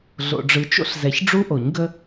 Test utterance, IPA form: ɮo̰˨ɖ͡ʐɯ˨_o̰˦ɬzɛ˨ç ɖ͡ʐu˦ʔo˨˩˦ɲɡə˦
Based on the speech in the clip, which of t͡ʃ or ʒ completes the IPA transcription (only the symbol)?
t͡ʃ